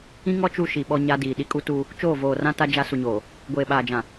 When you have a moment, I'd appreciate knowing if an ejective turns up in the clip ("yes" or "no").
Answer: yes